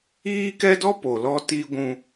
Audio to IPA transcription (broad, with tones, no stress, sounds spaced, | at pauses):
iː˦ k ɛ˦ d ɔ˦ p o˨ l ɔ˦ t i˦ ɡʷ ũ˦